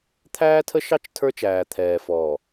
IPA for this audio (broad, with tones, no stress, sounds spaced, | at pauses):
t̪ʰ æː˦ tʰ ə˦ ʃ ɑ˦ t͡ʃ tʰ ə˞˦ t͡ʃ æː˨ t̪ʰ ɛː˨ f ɔː˨